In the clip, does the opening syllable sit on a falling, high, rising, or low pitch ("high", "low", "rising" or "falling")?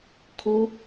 high